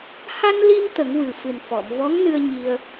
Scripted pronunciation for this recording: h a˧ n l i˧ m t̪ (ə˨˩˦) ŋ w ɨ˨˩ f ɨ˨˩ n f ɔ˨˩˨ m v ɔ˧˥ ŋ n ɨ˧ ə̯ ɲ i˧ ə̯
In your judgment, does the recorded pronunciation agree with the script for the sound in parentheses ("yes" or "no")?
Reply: yes